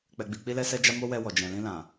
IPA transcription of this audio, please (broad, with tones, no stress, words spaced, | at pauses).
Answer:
k͡pɛ˧ɡ͡bi˧ k͡pi˦lɛ˦ sɛ˦d͡ʒa˦ mo˦wɛ˧ wɔ˨d͡ʒɛ̃˨ lĩ˧lã˨